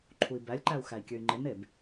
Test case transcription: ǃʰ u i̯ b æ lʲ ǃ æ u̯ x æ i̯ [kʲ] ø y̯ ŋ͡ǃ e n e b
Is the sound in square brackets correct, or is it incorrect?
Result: correct